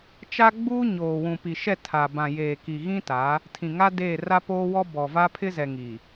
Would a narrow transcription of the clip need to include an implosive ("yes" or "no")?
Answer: no